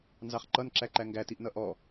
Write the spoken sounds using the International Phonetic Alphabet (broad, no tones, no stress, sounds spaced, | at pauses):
n z ɑ χ ǃ ʌ n ǁ æ ǃ æ ŋ ɡ æ t i ʔ n ʌ ʔ ɔ